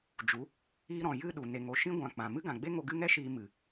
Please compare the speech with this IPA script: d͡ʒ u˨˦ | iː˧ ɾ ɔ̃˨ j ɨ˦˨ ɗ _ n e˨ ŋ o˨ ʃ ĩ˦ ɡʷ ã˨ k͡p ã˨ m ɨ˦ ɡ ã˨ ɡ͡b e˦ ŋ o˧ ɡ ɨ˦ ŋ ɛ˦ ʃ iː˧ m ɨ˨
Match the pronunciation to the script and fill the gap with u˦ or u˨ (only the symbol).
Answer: u˨